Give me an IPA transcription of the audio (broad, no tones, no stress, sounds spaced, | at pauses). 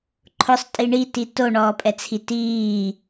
ǃʰ ʊ sˤ tʼ i ɳ i t i t o ɳ ɔː pʼ ɛ t͡sʰ i t iː